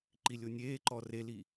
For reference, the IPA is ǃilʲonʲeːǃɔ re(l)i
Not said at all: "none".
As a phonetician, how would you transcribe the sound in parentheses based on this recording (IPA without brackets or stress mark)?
l